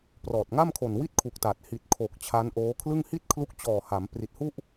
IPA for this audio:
p r ɔː˨˩ t̚ ŋ a˥˩ m kʰ o˨˩ n w i˥˩ t̚ kʰ u˨˩ k̚ t a˨˩ t̚ h i˨˩ t̚ kʰ o˨˩ k̚ t͡ɕʰ a˦˥ n ʔ oː˦˥ kʰ l ɯ˥˩ ŋ h i˥˩ t̚ kʰ l u˦˥ k̚ t͡ɕ ɔː˨˩ h a˩˦ m p r i˨˩ t̚ h u˥˩ ʔ

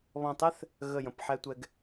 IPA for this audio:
β ɔ̃˧˩ tˤ ɛ˥ θ | ɣ ə˧˩ j ə̃˩˧ p ħ ɛ˧ tʷ ɛ˧ ɡ

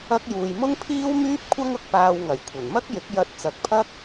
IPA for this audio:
ɐ˥ k̚ j uː˧ j m ʊ˥ ŋ pʰ iː˥ w m yː˥ p̚ kʷʰ ɐ˥ ŋ ʊ˨ k̚ p aː˧ w ŋ ɐ˨˩ j kʷʰ ɐ˨˩ n m ɐ˥ k̚ j ɪ˨˥ k̚ j ɐ˧ t̚ t͡s ɐ˨˥ k̚ pʰ ɐ˥ k̚

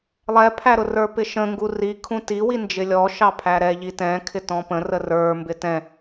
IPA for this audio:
lˠ ɛ pʰ æ ɾ ʊ r ə˞ p ɪ ʃ ə̃ ŋ ɡ u r i kʰ ũ t i w i n d͡ʒ ɪ lʲ ɔ ʃ ɑ pʰ æ ɾ ɛ ʎ i t ɛ̃ kʰ ɪ t ɔ̃ p ə̃ r ə r ə˞ m b ɪ t ɛ̃

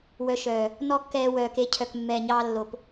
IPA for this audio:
w œ˧ ʃ œː˨ | n ɔ˦ kː ɛː˧ w œː˧ k e˧ cʰ œ˨ k mː ɛː˨ ɲ ɑː˧ lː o˨ p

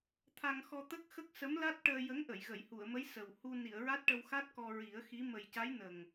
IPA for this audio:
t̪ʰ a˧ ŋ x ɔ˧ t̪ ə˦˥ k̚ x ə˦˥ k̚ s ə˧˥ m l a˦˥ t̚ ʈ əː˧ j ə˧˥ ŋ ʔ ə˨˩˨ j ɣ ə˨˩˨ j h u˨˩˨ ə̯ m ə˧˥ j s ə˨˩ w h u˧ n i˨˩˨ ə̯ ɹ a˦˥ t̚ ʈ ə˧ w x a˦˥ t̚ k ɔ˧ ɹ i˨˩˦ ə̯ x i˧˥ m ə˨˩ j c a˧˥ j n ə˨˩ ŋ

